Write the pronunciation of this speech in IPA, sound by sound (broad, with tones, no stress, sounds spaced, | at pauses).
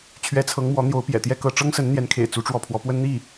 t͡ɕʰ ɥ ɛ˧˥ t͡sʰ ɤ˧˥ ŋ m w ɔ˧˥ n̪ j o˧˥ ʊ̯ p j ɛ̰˨˩ t̪ j ɛ˥˧ k ɤ˥˩ ʈ͡ʂ ɤ˥ ŋ s ə˧˥ n n̪ j ɛ˧˥ n kʰ ḛ˨˩ ɪ̯ t͡s u˧˥ ʈ͡ʂ w ɔ˥˩ pʰ w ɔ˧˥ p w ə˥ n n̪ i˥˩